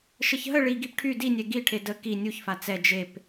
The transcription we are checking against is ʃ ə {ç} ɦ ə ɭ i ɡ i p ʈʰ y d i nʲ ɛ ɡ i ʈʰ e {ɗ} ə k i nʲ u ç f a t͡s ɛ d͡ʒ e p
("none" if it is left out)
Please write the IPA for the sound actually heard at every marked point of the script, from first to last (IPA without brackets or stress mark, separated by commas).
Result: ç, d